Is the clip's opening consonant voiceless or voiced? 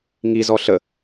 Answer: voiced